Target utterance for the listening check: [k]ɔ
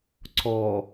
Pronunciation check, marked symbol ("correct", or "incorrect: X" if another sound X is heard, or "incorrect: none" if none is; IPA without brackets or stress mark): incorrect: ǀ